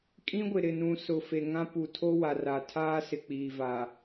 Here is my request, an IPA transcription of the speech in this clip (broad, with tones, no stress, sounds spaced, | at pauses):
kʼ ĩ˦ ɡʷ ɪ˨ ɾ ɪ˨ n ũ˨ s ʊ˨ f e˨ ŋ ã˦ p u˨ tʰ o˦ w a˨ r a˨ tʰ aː˦ s ɪ˨ k͡p iː˨ v a˨